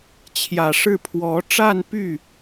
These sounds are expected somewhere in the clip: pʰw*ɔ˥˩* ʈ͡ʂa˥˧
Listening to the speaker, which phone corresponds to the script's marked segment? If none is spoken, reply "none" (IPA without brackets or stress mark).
ɔ˧˥